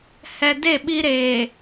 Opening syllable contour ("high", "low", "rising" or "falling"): low